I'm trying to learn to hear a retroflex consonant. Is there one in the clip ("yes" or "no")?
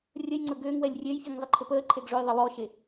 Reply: yes